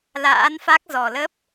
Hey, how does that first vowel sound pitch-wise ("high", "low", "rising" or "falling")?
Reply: rising